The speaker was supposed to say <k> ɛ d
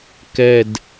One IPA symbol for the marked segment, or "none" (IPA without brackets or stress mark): k